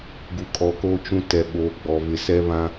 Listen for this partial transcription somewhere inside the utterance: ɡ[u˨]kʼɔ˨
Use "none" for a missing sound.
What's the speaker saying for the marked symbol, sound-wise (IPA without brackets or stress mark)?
u˨